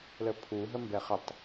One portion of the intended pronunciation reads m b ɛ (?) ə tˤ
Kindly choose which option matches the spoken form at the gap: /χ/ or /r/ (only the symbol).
χ